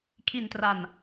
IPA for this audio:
kʰi˧ntra˧n

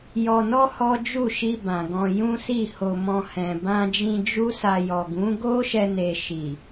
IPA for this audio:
jɔ˧nɔ˦ hɔ˦d͡ʒu˦˨ ʃi˧ bã˨ ɡɔ̃˧ jũ˦si˦˨ho˧mɔ̃˧ hɛ̃˨ bã˧d͡ʒĩ˧ d͡ʒu˦sa˧ jɔ˨ɡũ˨˦ ɡo˦ʃɛ˧ne˨ ʃi˨

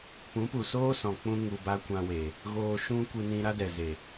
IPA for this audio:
pũ˨˦pu˨soː˦ sɔ̃˨k͡pũ˧ ŋu˨ba˧ kʷã˧we˨ | ɣoː˧ʃũ˦ kʷɨ˧nĩ˧ ɾa˦dɛ˨ze˨

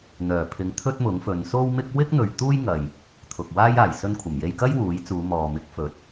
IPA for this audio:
n̪œː˨˩pʰɪ˨˧ŋ t̪ʰɵ˥t̚mʊ˨˥ŋfɵ˨˧n so˥wmɪ˥k̚ wɪ˥k̚n̪ɵ˨ɥ t̪uː˥jŋɐ˨j | t̪ʰʊ˨k̚waː˥j aː˨˩jsɵ˧n kʷʰɐ˨˩mje˧jkɐ˥j wuː˨˥jt͡suː˨˧mɔː˨ mɪ˨˥k̚fɵ˨˥t̚

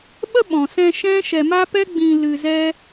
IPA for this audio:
ɓə˦ɓɔ̃˨sɛ̃˧ ʃɛ̃˦ʃɛ˧ ma˦pɛ˦ ɡ͡bĩ˧ lɨ˧ zɛ˦

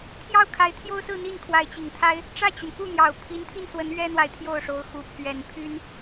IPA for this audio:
t̪ʰjɑ˥˩ʊ̯kʰa˧˥ɪ̯t̪ʰjo˥ʊ̯sɹ̩˥˧ n̪i˥˩nkʰwa˧˥ɪ̯t͡ɕi˨˩ŋt̪ʰa˥ɪ̯ | ʈ͡ʂä˥˩t͡ɕy˩nku˥˩n̪jɑ˨˩ʊ̯ pʰi˧˥nt̪ʰi˥˩nswə˧˥n ɥɛ˥n̪wa˨ɪ̯ t̪ʰjo˥˩ʊ̯ʂo˧˥ʊ̯xu˧˥ pʰɥɛ˨˩npʰy˥n

